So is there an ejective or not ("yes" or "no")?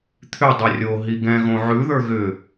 no